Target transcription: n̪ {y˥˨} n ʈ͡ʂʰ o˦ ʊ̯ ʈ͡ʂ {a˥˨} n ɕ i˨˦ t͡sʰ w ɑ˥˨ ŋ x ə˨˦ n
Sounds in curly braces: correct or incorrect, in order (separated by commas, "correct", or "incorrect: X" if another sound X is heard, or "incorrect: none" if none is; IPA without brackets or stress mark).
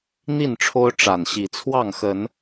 incorrect: i˥˨, incorrect: a˨˩